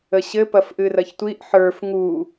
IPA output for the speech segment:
ə ɕ ɘ p ɐ f ʔ ɨ r ɐ ç tʷ i ʔ ħ ə˞ f ŋ u

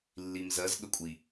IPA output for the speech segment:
lː i m z ɜ z ɠ ə kʷʼ i

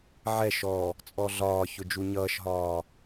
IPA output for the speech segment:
ʕ ɛ ʃ ɔ | t͡sʼ ɔ ɮ ɒː ç ʊ d͡ʒ u ɲ ʌː ʃ ɦ ɒː

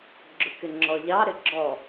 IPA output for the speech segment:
ɡ͡ǁ ʊ k ɪ ŋ͡ǁ ɔ ʎ ɑ ɾ ɪ ɡ͡ǁ ɔ

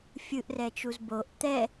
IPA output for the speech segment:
fʲ ɯ ʔ r ɛ t͡ʃ u z b o ʔ t̪ ɛ

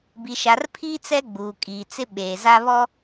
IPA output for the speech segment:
b i˨ ʃ a˨ r pʰ iː˦ t͡s ɛ˦ ɡ͡b uː˨ kʼ iː˨ t͡s ɪ˦ ɓ eː˨ z a˦ β ɔ˦

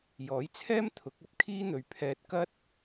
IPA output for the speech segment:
j ɔː˨˥ j t͡sʰ ɛː˥ m t̪ʰ ʊ˨˥ k̚ ɐ˨˥ p̚ kʰ iː˥ n̪ ɵ˨ ɥ pʰ ɛː˧ t̚ k ɐ˥ t̚

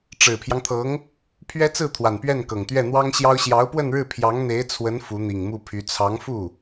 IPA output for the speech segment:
ʈ͡ʂ ɻ̩˨˩ pʰ j ɑ˦ ŋ t̪ʰ ɤ˧˥ ŋ | pʰ ɥ ɛ˥ t͡s ɹ̩˥˩ t̪ʰ w a˨˩ n p ɥ ɛ˥˩ n k ɤ˨˩ ŋ t̪ ɥ ɛ˥˩ n̪ w ɑ˥ ŋ ɕ j ɑ˥ ʊ̯ ɕ j ɑ˧˥ ʊ̯ p w ə˥˧ n ɻ ɻ̩˥˩ pʰ j ɑ˧˥ ŋ n̪ e˧˥ ɪ̯ t͡sʰ w ə˧˥ n f u˧˥ n̪ i˨˩ ŋ m u˥˩ pʰ y˧˥ t͡sʰ ɑ˧˥ ŋ f u˥˩

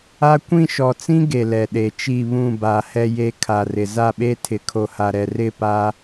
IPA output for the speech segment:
a˦ kʷ ĩ˦˨ ʃ ɔ˨ t͡s ĩ˦ ɡ e˨ l ɛ˨ ɗ e˨ t͡ʃ i˦˨ β ũ˦˨ b a˨ h ɛ˨ j e˨ kʰ a˨ r ɪ˨ z a˦˨ ɓ e˦ tʰ ɪ˨ kʰ o˨ h a˨ ɾ ɛ˨ r ɪ˦˨ p a˦

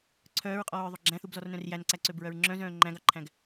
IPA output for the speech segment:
ǀʰ œː ɹ qʼ ɔː ɹ ðˤ ɵ ɡ͡ǁ æ̃ θ u b z ɔ r n œ̃ r j æ n ǀ æ ǀ ø b ɹ œ ɹ ŋ͡ǁ œ̃ z œ̃ː ŋ͡ǃ æ̃ ɡ ɑ ǃʰ æ̃ ɡ

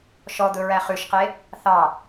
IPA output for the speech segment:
ʃ ɔ d̪ ɵ ɹ æ χ ʉ ʃ q e | θ ɑ

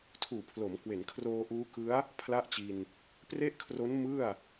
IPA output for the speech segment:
tʰ uː˨˩ pʰ l o˩˦ m k w e˩˦ n kʰ r oː˧ ʔ uː˦˥ k ɯ˦˥ a̯ | pʰ l a˥˩ ʔ t͡ɕ i˧ n | p r e˥˩ ʔ kʰ r o˦˥ n m ɯ˥˩ a̯

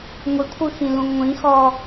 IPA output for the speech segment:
ŋʷ i kʷʰ ɯ x ĩ l ũ ŋʷ ĩ x ɔ

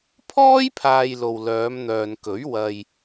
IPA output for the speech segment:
pʰ ɔː˥ j pʰ aː˨ j l o˨ w l œː˨˧ m n̪ œː˨ n k ɵ˨˥ ɥ w ɐ˨ j

